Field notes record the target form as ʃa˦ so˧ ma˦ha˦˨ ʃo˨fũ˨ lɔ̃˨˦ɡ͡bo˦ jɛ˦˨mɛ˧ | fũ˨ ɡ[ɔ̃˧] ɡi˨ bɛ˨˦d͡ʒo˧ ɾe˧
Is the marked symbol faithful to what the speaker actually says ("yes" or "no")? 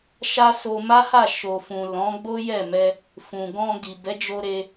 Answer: yes